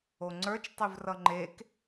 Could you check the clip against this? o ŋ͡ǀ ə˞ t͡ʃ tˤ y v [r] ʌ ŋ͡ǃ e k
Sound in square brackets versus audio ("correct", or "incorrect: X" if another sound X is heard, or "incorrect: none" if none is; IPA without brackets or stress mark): correct